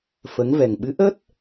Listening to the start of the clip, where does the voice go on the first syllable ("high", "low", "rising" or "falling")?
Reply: rising